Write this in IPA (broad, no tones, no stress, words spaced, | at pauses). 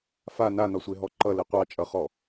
fa nanɒsʷeɦɔ ǃʌlɘ qʷɑt͡ʃʼʌχɔ